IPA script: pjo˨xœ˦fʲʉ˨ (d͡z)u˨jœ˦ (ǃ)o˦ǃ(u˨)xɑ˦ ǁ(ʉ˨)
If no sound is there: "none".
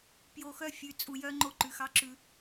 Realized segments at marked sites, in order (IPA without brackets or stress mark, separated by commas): t͡sʼ, ŋ͡ǃ, ʉ˨, ʉ˨